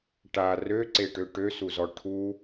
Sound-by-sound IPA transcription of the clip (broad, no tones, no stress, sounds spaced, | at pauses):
ʈ a r ø ǀ e ʈ ø ʈ ø s u z ɔ ʈʰ u